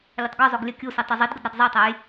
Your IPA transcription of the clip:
lʲ ə tˤ ɡ o zˤ o ɡ lʲ ə kʲ u s i tˤ u zˤ i d ɡ ə d ɾ æ d zˤ ə j tˤ æ j

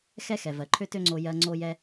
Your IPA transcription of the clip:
x ɛ˥ x ɛ˩ v ɜ˩ ǃʰ ø˥ t ø˥ ŋ͡ǀ o˧ j ɜ˧ ŋ͡ǀ o˧ j ɛ˧

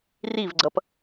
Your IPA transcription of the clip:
r i v ɡ͡ǀ ʌ p

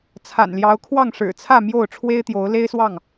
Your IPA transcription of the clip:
t͡sʰ a̰˨˩ n l j ɑ˨˦ ʊ̯ kʰ w ɑ˥˨ ŋ ʂ ɻ̩˨˩ t͡sʰ ä˥˨ m j o˥˨ ʊ̯ ʈ͡ʂʰ w e˦ ɪ̯ t̪ j o˨˦ ʊ̯ l e˦ ɪ̯ s w ɑ˥˨ ŋ

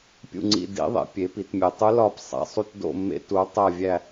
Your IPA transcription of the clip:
pʲ ṵ˦˨ ŋ͡ǀ ḭ˦˨ d ḭ˧˥ ðˤ ḛ˩˥ pʲ e˩˥ p i˩˥ t mʲ e˨ tˤ u˧˥ l ɒ˦˨ p sˤ æ̰˨ sˤ u˦˨ t d o̰˦˨ mː ḛ˧˥ t u˩˥ tˤ æ˦˨ vʲ æ˦˨

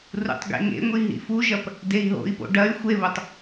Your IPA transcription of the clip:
r ṵ tˤ ɡ ḛ ŋ ḛ ŋʷ i ɦ ḭ f u ʒ ɐ p | d e i̯ ɦ o̰ i̯ p o̰ ɖ ɐ y̯ xʷ e β o tˤ

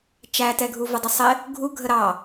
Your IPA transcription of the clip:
t͡ʃ æ t ɛ ɡʱ u v ɘ dˤ ə sˤ ɪ | ɡʱ u ɡʱ ə ɾ ɑ

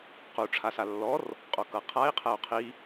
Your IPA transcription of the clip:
q u ʈ͡ʂʰ a s a lː ɔ r | qʼ o k ɤ qʰ a i̯ qʰ ɛ u̯ qʰ i

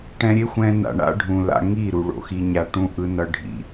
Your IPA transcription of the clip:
ʈ ɛ̃˧ ɾʲ e˦ xʷ ɛ̃˧ n a̰˨ ɳ a̰˦ ɖʱ ũ˨ l a̰˧ ŋ i˦˨ ɾ u˨ ɭ o̰˨ x i˧ ɲ a˧ ʈ ũ˦ ʔ ɯ˦ n ʌ˧ ɖʱ ḭ˨

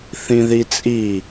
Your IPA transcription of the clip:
θ ĩ ð i t͡sʼ i

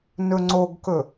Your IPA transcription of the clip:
n ɵ ŋ͡ǀ o ɡ k ɵ

